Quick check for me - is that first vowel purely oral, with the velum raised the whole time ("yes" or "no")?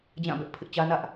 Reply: no